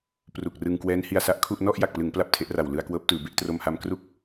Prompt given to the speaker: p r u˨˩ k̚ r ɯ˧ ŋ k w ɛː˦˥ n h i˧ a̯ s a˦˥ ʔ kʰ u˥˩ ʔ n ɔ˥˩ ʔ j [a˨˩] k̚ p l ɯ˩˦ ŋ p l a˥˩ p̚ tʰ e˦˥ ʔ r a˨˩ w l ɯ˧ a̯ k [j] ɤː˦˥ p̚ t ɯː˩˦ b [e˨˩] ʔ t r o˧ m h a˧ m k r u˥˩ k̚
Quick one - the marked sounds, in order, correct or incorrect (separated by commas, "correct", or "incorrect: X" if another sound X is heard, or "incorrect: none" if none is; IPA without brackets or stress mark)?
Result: correct, incorrect: w, incorrect: e˥˩